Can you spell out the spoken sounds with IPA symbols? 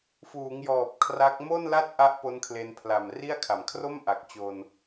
f uː˩˦ ŋ j ɔː˨˩ p̚ kʰ r a˦˥ k̚ m o˥˩ n l a˥˩ t̚ ʔ a˦˥ ʔ p o˦˥ n kʰ l e˧ n pʰ l a˨˩ m r i˥˩ a̯ kʰ a˨˩ m kʰ r o˥˩ m ʔ a˨˩ k̚ t͡ɕ o˧ n

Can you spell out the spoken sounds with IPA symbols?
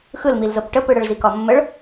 x ɯ l m i l z ɤ p ʈ ə p ɯ ɽ ə ɭ z i k ɒ mː ə ɭ

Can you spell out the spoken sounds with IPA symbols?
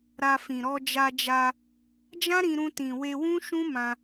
ɾ a˧ f ĩ˨ ɾ ɔ˧ d͡ʒ a˧ d͡ʒ a˧ | d͡ʒ ã˦ ɾ ĩ˧ ɾ ũ˧ t ĩ˨ w e˧ w ũ˦ ʃ ũ˦ m ã˧

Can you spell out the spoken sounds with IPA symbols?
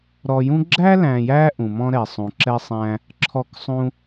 ɾ ɔ˧ j ũ˥ ɡ͡ǁ æ˥ l æ̃˧ j æ˥ ʔ ũ˩ m ɔ̃˧ ɾ ɛ˩ sˤ ũ˩ ǁ ɛ˧ sˤ æ̃˧ | ǁʰ ɔ˧ k sˤ ũ˧

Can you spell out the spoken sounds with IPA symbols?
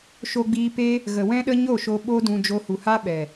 ʃ o˧ ɡ͡b iː˧ p e˦ | ɣ ə˨ w ɛ̃˦ ɗ ə˦ ɲ o˦˨ ʃ o˧ ɓ o˦ d ũ˧ d͡ʒ o˧ h u˨ h a˦ ɓ ɛ˨

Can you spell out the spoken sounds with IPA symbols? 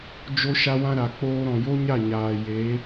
d͡ʒ o˦ ʃ a˦ w ã˦ ɾ a˨ k͡p oː˧ ɾ ɔ̃˨ j o˦ ɲ a˦˨ ɲ aː˨ j e˨˦

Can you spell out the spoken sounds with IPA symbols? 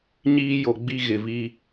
ɲ iː˦ j o˨ ɡ͡b i˦ ɣ ɪ˨ v i˦

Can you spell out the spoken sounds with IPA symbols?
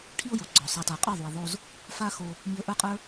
ʈʰ i˦ ʊ̯ j o˨ ɡ͡ǀ ɔ˨ sˤ a˨ t a˨ qʼ ə˞˦˨ ðˤ u˨ ə̯ ðˤ o˧ z | f a˦ x o˧ | m i˧ ə̯ ʔ ə˞˦ qʼ ə˞˦

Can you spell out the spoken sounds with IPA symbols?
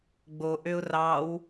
ɡ͡b o ʔ ø ʊ̯ r ɑ w

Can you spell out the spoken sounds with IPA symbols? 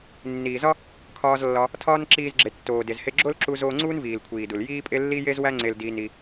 nː iː˩ z ɒ˥ | kʰ ɒː˧ z lː ɒ˧ | tʰ ɒː˥ n ǁ iː˧ z ɡ͡ǁ e˩ tː oː˩ d e˩ z h e˧ ɡ͡ǁ o˥ l ǁ u˧ z oː˧ ŋ͡ǀ uː˥ n v iː˩ l kʷʰ iː˩ d u˩ l j iː˥ pʼ e˥ lː i˥ j e˥ z w æ˥ ŋ͡ǀ e˧ l d iː˧ n i˧

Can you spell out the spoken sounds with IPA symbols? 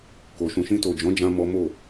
k o˨ ʃ ũ˨ ʃ ĩ˧ t o˨ d͡ʒ ɔ̃˨˦ d͡ʒ ã˧ m ɔ˦ m o˦˨

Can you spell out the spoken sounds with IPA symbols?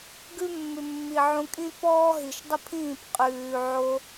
ɡ ʉ˦ mː ʉ˨ mː i˨ ʕ ũ˧ kʼ ĩ˦ p ɔː˦ ɦ i˨ ʃ dˤ ə˦ pʰ ĩː˦˨ p qʼ ʉː˨ ʕ o˧

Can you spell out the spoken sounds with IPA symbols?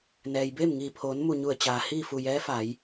n ɛː˩ j b eː˥˨ m ŋ iː˧˩ pʰ oː˩˧ n m u˧˩ ɲ u˧˩ ə̯ t͡ɕ aː˩ h iː˥˨ f u˧˩ j ɛː˧˥ f a˩˧ j

